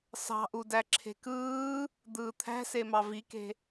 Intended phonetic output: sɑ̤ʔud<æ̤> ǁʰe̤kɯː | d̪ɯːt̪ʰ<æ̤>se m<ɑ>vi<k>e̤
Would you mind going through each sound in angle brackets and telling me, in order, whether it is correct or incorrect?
incorrect: æ, correct, correct, correct

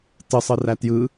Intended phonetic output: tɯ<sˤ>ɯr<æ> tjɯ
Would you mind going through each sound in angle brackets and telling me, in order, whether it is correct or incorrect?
correct, correct

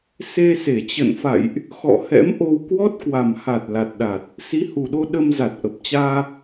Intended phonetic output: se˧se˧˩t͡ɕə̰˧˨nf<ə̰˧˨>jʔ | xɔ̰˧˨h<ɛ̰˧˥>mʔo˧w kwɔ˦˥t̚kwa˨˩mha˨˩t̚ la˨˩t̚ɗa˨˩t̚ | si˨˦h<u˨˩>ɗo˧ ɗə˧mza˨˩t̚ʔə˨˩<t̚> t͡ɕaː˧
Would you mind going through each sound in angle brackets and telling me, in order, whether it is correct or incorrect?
incorrect: a̰˧˨, correct, correct, incorrect: p̚

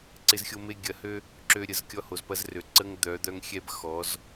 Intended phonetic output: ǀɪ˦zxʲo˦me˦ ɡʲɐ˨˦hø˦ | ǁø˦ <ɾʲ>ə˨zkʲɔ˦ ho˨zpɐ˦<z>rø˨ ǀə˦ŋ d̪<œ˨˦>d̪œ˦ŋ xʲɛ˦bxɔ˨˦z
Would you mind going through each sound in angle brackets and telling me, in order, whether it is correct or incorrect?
correct, correct, correct

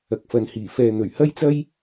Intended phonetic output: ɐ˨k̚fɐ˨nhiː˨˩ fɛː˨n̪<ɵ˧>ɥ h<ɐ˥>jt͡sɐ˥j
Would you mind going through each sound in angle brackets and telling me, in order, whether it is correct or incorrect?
incorrect: ɵ˨˩, correct

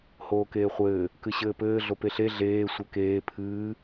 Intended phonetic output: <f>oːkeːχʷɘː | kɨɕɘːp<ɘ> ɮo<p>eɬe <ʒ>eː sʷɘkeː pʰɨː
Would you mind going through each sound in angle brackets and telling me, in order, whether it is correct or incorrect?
incorrect: h, incorrect: ɘː, correct, incorrect: ɮ

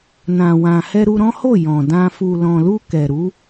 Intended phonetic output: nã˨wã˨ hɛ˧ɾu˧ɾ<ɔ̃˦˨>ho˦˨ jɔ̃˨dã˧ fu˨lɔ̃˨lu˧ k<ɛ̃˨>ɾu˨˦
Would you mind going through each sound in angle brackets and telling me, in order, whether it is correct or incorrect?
incorrect: ɔ̃˦, incorrect: ɛ˨

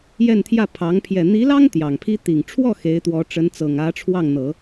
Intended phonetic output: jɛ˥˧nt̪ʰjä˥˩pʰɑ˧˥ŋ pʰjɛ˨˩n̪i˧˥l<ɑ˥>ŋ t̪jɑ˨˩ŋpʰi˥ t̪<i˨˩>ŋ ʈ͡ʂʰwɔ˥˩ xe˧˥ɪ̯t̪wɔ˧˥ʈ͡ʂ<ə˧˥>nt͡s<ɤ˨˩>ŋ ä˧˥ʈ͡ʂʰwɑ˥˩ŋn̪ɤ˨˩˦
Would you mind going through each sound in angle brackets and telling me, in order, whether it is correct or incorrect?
correct, correct, correct, correct

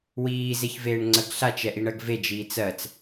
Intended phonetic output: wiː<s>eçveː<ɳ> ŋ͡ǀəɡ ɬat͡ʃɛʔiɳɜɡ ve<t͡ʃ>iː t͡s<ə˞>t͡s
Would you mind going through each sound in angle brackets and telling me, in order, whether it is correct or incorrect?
incorrect: z, correct, incorrect: d͡ʒ, incorrect: ɜ

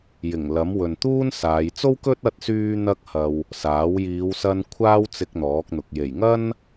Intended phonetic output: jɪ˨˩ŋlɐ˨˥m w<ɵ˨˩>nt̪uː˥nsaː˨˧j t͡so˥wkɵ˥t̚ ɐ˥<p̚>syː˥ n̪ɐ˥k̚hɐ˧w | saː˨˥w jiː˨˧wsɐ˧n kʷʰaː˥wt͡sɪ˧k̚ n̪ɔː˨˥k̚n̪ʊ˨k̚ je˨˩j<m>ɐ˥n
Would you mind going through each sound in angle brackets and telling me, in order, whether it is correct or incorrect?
incorrect: ɵ˨, incorrect: t̚, incorrect: ŋ

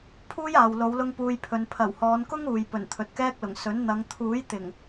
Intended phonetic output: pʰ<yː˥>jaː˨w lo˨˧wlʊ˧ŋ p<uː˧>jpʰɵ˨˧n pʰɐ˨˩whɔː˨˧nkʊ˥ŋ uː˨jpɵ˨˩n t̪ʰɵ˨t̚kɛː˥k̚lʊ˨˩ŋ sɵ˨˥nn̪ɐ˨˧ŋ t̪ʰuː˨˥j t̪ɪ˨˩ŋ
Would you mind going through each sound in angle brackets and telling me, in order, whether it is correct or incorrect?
incorrect: uː˥, correct

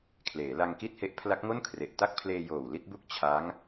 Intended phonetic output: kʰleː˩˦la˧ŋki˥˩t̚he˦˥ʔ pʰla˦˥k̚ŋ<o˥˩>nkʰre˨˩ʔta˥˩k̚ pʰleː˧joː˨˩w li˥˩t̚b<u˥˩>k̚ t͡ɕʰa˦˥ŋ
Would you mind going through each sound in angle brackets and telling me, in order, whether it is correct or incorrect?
correct, correct

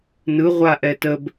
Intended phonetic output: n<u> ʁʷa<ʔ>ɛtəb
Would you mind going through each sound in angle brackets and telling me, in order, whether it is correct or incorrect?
incorrect: ɯ, correct

